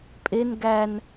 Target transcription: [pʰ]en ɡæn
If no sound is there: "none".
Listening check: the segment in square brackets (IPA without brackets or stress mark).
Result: pʼ